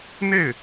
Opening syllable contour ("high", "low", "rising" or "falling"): falling